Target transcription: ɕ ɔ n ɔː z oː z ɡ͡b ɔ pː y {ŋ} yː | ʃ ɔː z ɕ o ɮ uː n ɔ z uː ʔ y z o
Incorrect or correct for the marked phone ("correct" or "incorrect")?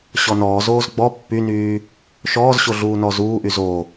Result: incorrect